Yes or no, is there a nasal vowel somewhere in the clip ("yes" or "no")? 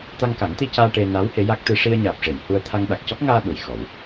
no